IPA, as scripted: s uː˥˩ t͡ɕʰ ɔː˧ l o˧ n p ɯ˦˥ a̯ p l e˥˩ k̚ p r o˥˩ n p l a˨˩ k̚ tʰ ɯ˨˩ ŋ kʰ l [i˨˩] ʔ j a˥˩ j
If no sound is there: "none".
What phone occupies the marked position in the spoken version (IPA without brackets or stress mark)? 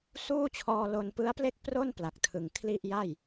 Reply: i˥˩